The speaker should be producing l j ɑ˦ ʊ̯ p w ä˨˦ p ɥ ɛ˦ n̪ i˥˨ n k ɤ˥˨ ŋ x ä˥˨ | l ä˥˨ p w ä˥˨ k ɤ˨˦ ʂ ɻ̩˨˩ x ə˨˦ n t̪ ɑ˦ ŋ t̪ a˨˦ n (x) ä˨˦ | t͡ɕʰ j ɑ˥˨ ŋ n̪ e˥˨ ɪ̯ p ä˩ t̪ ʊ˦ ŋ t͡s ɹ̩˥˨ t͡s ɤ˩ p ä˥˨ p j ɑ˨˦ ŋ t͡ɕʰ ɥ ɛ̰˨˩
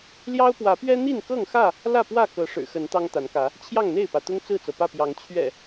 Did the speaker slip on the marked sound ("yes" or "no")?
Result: yes